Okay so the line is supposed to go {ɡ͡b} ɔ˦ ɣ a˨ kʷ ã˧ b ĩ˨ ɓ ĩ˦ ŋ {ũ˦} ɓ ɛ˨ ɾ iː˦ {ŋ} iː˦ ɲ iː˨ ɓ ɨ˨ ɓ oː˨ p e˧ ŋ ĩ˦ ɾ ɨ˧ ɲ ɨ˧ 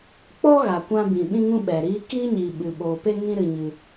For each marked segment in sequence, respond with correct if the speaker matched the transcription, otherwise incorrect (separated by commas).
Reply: incorrect, correct, incorrect